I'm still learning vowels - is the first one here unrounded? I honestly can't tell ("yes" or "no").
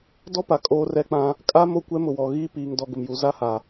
no